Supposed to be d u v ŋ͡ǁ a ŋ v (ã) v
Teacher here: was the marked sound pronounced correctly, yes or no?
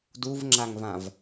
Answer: yes